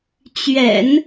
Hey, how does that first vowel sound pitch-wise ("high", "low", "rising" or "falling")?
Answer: low